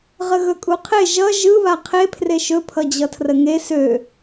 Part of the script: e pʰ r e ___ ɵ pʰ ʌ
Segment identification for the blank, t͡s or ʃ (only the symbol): ʃ